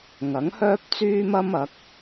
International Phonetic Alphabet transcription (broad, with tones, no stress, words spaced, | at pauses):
ŋɐ˨˥ŋhœː˥p̚t͡syː˥m ɐ˥m ɐ˨˥k̚